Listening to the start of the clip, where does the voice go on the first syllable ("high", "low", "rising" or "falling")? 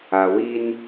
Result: low